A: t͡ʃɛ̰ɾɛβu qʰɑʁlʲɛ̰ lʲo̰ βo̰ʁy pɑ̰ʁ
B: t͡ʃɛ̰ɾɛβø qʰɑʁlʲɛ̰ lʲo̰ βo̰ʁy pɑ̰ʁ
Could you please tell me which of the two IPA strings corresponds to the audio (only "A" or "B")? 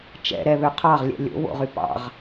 B